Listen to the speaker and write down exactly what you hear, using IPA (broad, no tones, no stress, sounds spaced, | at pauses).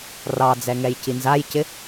r ɑ d͡z ɛ ŋ ɛ j c i n z a j c ɪ